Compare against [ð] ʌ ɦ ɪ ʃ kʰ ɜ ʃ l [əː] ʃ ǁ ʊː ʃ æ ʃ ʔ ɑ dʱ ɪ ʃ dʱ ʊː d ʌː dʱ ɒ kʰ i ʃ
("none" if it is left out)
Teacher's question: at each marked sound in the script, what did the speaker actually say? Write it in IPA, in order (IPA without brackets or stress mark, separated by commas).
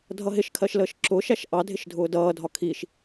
dʱ, əː